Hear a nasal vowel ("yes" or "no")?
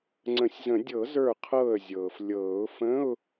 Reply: yes